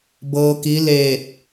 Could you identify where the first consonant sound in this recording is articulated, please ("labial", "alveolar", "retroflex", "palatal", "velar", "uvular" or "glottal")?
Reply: labial